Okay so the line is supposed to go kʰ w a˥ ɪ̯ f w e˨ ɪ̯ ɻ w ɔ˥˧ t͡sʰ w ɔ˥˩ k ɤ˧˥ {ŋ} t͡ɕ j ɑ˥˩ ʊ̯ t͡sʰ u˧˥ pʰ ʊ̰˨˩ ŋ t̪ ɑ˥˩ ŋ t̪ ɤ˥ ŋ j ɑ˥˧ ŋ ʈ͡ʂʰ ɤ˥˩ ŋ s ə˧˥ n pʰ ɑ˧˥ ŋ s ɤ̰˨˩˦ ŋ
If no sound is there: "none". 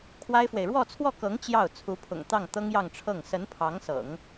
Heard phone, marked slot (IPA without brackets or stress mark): ŋ